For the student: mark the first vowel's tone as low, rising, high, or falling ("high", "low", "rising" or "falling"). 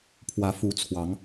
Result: rising